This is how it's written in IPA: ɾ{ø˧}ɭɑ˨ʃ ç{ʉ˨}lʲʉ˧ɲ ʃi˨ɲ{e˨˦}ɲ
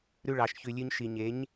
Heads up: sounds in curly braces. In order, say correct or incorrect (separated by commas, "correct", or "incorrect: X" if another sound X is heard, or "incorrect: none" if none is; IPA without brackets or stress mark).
incorrect: ʉ˧, correct, correct